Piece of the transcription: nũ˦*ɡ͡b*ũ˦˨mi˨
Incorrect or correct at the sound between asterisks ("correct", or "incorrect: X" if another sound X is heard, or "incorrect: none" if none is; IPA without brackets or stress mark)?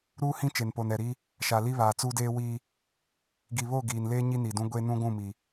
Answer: incorrect: ɡʷ